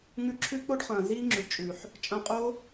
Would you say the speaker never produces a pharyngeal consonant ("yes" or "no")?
no